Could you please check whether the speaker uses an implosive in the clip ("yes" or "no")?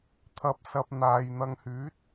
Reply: no